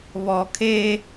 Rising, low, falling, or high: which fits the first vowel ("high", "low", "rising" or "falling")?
low